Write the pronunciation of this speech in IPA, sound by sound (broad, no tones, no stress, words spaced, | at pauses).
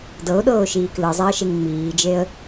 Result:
dɤʊ̯ɗɤːʊ̯ʃiː klɯzˤeə̯ʃeŋ ŋ͡miːd͡ʒeə̯